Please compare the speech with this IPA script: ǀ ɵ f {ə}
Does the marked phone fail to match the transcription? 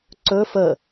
no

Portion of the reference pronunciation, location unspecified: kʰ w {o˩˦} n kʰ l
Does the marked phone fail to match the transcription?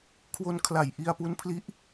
yes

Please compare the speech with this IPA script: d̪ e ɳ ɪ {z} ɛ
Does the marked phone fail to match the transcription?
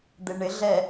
yes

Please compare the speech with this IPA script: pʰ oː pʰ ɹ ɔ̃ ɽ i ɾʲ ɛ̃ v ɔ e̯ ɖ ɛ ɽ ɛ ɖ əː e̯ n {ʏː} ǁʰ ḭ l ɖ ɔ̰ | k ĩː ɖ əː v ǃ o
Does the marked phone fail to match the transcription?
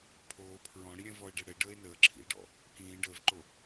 yes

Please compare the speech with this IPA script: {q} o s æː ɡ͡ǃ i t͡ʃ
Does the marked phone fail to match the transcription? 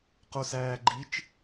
no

